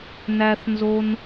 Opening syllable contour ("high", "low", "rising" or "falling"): high